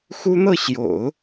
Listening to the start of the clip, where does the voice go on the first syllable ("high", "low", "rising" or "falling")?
high